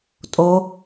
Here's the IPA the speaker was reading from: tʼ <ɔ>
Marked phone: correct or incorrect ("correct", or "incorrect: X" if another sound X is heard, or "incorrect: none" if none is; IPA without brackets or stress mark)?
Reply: incorrect: o